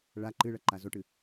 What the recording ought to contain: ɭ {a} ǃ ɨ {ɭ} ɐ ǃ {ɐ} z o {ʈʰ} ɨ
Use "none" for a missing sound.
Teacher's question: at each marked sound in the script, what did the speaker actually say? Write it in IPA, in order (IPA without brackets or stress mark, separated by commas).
a, ɭ, a, ʈ